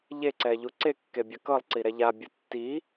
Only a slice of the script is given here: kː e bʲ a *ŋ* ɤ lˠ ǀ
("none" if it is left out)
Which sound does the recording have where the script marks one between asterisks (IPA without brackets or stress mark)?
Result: k